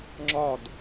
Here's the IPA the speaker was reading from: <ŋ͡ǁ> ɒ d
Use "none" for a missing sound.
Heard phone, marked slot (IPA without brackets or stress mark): ŋ͡ǁ